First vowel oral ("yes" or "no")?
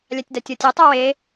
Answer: yes